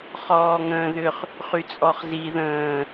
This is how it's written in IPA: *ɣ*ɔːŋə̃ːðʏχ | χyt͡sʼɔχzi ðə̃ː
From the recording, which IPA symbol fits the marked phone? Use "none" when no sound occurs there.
χ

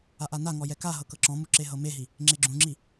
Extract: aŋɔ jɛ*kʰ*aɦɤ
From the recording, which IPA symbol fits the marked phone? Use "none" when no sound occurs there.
k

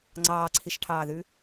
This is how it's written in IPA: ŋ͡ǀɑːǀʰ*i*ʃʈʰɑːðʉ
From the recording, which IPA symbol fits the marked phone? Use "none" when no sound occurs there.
i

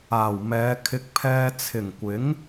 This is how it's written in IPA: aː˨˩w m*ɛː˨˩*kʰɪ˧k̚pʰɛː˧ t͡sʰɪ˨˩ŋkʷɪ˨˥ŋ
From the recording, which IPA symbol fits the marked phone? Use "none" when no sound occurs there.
ɛː˨˧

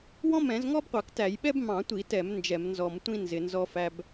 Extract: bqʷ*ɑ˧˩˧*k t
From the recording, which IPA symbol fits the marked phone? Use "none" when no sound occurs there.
ɑ˧˩˧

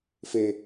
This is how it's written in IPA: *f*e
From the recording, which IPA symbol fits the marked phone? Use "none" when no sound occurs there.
f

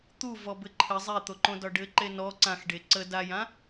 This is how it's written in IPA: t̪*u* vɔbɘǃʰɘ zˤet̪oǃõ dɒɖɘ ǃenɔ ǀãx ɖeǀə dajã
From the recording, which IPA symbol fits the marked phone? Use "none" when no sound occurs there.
u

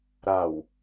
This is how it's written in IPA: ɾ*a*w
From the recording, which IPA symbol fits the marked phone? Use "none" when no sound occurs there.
a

